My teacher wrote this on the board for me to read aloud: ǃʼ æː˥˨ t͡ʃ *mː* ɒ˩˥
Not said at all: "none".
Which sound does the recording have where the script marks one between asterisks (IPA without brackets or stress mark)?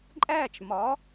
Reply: m